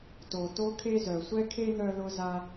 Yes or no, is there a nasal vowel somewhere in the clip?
no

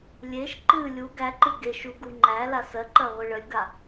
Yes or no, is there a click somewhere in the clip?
yes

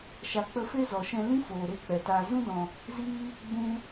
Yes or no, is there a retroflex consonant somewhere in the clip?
no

